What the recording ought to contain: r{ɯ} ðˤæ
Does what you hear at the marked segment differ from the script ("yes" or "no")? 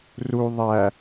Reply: yes